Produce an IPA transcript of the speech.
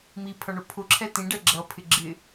mipʰʌɳʊ pʰʊǁʰɛ tĩɖɛ ɡ͡ǁʌpʰɪ ɡ͡ǁɪ

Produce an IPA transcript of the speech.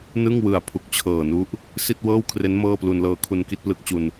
nɯ˥˩ŋ wɯ˨˩a̯ pʰu˨˩k̚t͡ɕʰɤː˨˩nu˦˥ʔ | si˥˩t̚wɤː˥˩wkʰre˦˥n mɤː˥˩plu˧nlɤː˧ kʰu˧nki˥˩t̚plɯ˦˥k̚t͡ɕu˧n

